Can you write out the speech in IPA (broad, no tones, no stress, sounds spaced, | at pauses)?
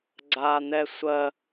ɡ͡ǀ aː n̪ ɛ sʷ ɜ